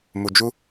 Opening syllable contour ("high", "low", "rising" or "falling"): low